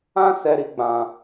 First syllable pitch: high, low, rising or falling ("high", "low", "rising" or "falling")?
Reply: high